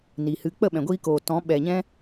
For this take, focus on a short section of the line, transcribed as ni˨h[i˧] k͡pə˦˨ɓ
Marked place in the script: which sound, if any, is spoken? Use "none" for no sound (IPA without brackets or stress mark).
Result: ɨ˧